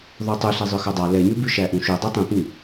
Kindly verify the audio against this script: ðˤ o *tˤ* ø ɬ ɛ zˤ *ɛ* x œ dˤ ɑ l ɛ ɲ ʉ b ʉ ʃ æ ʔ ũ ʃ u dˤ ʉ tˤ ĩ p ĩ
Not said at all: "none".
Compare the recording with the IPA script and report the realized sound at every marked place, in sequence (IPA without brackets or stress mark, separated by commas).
tˤ, œ